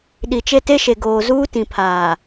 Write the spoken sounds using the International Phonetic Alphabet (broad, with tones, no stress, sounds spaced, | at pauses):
ɗ i˨ t͡ʃ e˦ t e˦ ʃ e˨ ɡ oː˨ z uː˦ t ĩ˨ pʰ aː˨